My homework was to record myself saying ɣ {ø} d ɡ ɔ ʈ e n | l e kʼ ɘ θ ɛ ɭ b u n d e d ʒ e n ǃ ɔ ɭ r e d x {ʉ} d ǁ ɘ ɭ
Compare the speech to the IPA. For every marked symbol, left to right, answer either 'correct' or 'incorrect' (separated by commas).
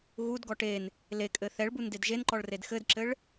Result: incorrect, incorrect